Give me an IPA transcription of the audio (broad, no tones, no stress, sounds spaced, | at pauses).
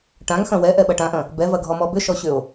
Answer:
ʈ ã ŋ x ɐ̃ w ɛ ʔ ɛ ɓ ɐ ʈ ã ʔ ɐ̃ | b ɛ v ɐ ɡʱ ɔ m ɔ b ʏ ʃ ɔ ɕ ʏ o̯